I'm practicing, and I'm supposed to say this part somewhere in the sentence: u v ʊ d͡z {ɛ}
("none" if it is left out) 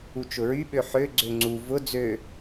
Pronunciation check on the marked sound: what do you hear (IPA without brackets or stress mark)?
ø